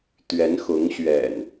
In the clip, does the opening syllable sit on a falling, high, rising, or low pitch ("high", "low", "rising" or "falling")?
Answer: rising